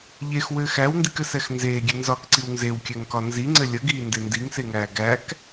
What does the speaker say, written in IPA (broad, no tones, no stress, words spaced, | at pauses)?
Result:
ʎexwɘːx æwndikɘsɛx nzeːɡʲe nzɒkǀiw nzewkʲɛŋkɒ nziŋ͡ǀɘ lʲəɡiːnde ndiŋseŋæː ɡæk